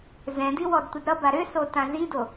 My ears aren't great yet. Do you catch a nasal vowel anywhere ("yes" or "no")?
yes